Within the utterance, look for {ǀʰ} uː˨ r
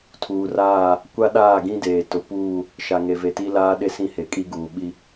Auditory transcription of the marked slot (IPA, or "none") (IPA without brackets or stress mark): tʰ